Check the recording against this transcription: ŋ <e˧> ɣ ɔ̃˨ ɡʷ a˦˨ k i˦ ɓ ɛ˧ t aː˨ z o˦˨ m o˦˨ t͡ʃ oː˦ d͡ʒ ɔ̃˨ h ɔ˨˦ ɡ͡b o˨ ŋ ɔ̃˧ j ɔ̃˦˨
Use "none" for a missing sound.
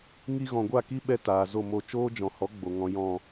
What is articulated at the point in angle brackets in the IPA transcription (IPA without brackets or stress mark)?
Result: i˧